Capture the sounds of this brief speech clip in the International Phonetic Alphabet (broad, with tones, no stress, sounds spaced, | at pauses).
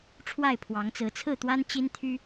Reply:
ʈ͡ʂʰ w a˥˨ ɪ̯ pʰ w ɑ˨˦ ŋ t͡s ɹ̩˨˦ t͡sʰ ɹ̩˥˨ t̪ w a˦ n t͡ɕ i˦ n t̪ʰ y˦